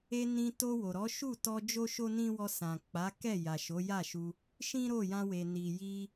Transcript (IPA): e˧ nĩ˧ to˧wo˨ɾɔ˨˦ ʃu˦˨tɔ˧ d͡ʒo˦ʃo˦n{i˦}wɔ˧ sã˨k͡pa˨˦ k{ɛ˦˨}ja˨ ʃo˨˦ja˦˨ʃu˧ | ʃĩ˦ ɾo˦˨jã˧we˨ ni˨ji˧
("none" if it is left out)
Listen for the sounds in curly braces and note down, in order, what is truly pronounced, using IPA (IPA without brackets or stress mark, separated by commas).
ĩ˦, ɛ˦˨